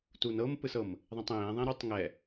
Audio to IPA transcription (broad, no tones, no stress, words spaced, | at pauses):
tunɤmpɯs ɤm | ðˤĩtˤẽːðˤẽ ɾutˤ ŋɛ